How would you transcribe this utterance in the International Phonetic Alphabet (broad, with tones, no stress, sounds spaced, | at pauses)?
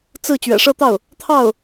t͡s ɹ̩˥˩ t͡ɕ ɥ ɛ̰˨˩ ʂ ɤ˥˧ t̪ ɑ˥˩ ʊ̯ | t̪ʰ ɑ˥˩ ʊ̯